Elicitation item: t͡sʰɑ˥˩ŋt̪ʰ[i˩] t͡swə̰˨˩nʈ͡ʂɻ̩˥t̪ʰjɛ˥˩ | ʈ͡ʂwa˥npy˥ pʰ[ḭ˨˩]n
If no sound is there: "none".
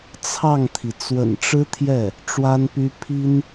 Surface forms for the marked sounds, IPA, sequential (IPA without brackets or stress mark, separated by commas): i˩, i˥